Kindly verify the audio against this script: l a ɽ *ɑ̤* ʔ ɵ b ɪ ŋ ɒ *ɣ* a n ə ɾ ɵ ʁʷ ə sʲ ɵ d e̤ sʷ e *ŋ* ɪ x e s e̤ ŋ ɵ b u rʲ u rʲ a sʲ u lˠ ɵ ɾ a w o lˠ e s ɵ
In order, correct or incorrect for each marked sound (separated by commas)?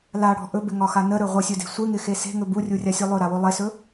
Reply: incorrect, incorrect, correct